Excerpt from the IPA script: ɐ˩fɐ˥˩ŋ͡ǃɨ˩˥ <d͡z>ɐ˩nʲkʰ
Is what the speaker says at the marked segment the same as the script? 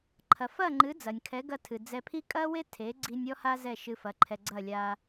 yes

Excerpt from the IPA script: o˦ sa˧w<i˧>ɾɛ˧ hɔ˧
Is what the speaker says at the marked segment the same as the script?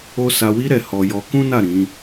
no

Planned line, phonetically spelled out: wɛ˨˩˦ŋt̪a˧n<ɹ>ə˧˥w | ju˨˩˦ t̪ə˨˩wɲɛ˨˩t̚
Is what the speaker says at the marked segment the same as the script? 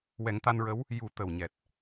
yes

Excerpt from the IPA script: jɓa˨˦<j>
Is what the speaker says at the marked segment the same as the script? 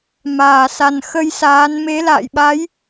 yes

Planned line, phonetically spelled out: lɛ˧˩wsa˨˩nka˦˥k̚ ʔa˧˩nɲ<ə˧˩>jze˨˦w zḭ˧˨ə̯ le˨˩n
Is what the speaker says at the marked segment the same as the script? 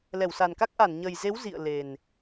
no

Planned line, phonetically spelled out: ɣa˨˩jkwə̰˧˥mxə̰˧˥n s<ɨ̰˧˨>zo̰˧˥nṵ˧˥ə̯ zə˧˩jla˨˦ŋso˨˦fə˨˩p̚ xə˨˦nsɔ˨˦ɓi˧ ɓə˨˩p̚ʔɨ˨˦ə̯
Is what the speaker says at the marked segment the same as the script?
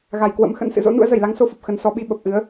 yes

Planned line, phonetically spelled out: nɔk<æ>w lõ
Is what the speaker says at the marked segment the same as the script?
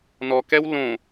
no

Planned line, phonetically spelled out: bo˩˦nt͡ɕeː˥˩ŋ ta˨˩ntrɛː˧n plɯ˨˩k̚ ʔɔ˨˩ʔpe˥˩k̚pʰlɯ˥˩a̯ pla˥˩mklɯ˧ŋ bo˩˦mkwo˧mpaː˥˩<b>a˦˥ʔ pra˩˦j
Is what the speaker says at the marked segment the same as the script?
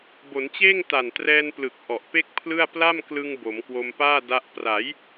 no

